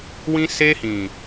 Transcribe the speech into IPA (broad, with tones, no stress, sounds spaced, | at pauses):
w ĩ˦ s e˦ h ĩ˨